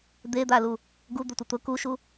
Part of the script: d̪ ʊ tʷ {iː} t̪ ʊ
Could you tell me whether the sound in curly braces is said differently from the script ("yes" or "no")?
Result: yes